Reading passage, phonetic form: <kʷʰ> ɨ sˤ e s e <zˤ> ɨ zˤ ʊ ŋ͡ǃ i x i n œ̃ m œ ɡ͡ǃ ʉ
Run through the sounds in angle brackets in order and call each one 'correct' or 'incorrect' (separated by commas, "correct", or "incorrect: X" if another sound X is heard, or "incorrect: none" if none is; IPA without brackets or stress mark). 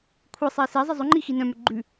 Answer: correct, correct